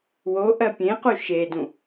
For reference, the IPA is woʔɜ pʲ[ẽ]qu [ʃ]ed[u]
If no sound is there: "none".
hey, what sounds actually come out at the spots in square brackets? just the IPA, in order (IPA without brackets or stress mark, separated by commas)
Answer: ẽ, ʃ, ũ